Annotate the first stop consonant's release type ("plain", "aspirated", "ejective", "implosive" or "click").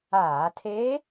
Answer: aspirated